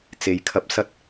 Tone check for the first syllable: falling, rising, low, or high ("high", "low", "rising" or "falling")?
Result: low